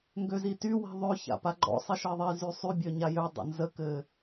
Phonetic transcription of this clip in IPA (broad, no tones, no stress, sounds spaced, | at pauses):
ŋ ɡ ø z i t y w i̤ ðˤ ø ç a̰ p a ɡ͡ǃ ɔ̰ sˤ i ʃ ɜ ðˤ i z y sˤ y bʲ ø ɲ a j ø dˤ ə̰ n z ə k ɘ